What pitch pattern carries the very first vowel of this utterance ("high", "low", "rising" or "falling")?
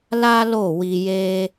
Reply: high